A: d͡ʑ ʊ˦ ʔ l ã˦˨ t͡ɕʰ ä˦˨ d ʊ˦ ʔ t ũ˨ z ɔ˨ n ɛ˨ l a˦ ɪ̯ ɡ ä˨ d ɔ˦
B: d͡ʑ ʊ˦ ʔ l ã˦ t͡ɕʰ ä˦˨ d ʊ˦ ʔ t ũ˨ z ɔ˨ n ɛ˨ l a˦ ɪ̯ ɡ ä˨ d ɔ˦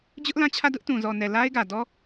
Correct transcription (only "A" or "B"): A